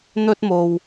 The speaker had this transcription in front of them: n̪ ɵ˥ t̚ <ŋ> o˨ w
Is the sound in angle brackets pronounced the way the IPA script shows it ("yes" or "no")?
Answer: no